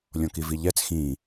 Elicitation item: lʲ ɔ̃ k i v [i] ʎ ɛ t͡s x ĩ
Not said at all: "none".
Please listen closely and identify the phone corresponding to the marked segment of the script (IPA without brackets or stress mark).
i